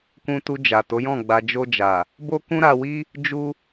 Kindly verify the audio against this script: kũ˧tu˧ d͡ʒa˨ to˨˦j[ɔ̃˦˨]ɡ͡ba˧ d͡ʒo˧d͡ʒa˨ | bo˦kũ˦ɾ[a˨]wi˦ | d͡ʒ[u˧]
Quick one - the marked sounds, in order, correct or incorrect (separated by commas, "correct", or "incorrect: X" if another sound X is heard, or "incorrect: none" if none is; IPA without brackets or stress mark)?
correct, incorrect: a˧, correct